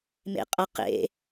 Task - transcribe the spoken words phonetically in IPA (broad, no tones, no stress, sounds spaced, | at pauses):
m ḛ qʼ ʌ q ḛ